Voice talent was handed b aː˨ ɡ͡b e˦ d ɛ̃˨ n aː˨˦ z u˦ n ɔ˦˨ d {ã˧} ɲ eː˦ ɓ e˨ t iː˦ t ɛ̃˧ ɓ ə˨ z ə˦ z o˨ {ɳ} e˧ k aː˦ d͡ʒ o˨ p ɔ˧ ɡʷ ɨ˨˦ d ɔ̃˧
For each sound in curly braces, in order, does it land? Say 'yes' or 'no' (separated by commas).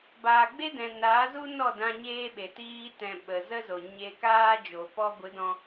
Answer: yes, no